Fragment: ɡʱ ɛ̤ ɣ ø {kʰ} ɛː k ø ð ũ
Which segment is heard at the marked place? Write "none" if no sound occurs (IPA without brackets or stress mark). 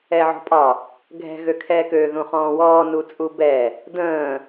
kʰ